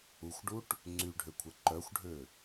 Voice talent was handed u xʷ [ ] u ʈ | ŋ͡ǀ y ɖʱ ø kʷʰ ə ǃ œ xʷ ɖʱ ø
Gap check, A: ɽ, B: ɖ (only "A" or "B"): B